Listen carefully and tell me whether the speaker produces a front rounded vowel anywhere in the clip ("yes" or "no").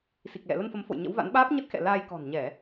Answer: no